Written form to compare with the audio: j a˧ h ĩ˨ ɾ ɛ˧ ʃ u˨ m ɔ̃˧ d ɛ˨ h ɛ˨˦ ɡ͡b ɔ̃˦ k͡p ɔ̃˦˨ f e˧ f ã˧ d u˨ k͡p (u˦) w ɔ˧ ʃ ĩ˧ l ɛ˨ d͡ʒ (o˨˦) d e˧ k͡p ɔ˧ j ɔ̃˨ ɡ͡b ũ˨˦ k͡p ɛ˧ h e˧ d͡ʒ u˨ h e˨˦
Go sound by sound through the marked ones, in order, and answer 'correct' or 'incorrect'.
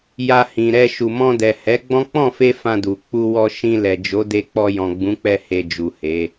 incorrect: u˧, correct

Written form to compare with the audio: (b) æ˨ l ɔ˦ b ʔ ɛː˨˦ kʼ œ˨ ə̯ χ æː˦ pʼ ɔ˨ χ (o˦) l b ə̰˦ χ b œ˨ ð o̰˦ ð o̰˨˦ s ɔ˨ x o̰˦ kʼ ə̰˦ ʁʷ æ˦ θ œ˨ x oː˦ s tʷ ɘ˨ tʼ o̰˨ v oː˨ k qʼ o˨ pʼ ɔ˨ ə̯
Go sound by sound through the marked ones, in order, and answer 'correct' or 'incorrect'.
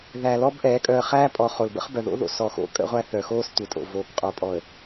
incorrect: ð, incorrect: o˨

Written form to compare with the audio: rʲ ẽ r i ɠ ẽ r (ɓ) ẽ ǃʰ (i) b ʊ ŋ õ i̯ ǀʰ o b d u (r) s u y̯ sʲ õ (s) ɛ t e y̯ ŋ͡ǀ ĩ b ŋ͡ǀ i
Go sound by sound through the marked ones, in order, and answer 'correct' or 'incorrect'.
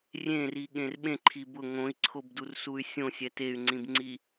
correct, correct, correct, incorrect: sʲ

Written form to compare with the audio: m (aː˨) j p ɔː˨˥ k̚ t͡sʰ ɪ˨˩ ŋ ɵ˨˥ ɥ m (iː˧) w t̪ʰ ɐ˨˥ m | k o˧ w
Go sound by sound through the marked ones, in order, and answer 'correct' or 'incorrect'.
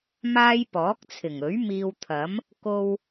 incorrect: aː˥, correct

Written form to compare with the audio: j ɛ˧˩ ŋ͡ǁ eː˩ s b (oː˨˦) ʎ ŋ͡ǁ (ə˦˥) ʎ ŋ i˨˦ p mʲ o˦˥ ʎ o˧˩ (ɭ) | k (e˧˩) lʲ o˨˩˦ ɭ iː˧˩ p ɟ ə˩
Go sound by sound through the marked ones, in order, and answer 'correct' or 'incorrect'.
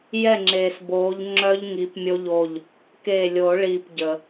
correct, incorrect: œ˦˥, incorrect: ʎ, incorrect: eː˧˩

